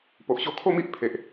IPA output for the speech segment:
p o˨ ʔ ɕ o˧ kʰ o˥˧ m i˦ ʔ pʰ e˨ ʔ

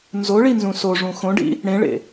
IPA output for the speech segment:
n z o ɭ i n z ũ s o ʐ ũ x õ ɖ ḭ | ɽ ẽ ɭ ḛ

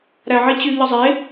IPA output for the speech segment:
ɾ æ ʕ i t͡ɕ y ʎ ɯ zˤ e

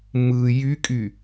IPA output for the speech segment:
m ɯ j y kʼ y

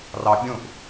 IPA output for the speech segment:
r ɑ bʲ ũ ʔ

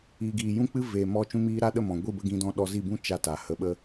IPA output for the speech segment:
i˨ ɡ iː˨ j ũ˦ k͡p ɨ˦ v eː˨ m ɔ˧ t͡ʃ ũ˧ m iː˧ ɾ a˦˨ ɗ ə˦˨ m ɔ̃˨ ɡʷ i˦˨ b ə˧ ɡ ĩ˧ d ɔ̃˧ ɗ ɔ˧ z i˦˨ b ũ˦ t͡ʃ a˦˨ t a˨ h ə˧ ɓ ə˦

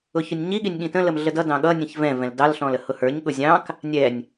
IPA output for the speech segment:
ʊ ç ʊ nʲ ɲ i ɠ i nʲ ɠ ĩ t ə̃ l ə m ɮ ə d ʌ d ɑ̃ ɠ ʌ nʲ ə̃ ç v ɛ̃ v ɛ̃ l d ɑ l ɬ ɔ̃ l ə h ʊ h ə˞ ɲ ɠ ʊ zʲ ɑ̃ k | nʲ ɛ nʲ

